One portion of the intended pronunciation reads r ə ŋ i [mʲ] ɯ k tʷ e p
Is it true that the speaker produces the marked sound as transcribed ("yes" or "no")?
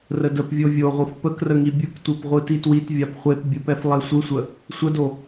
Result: no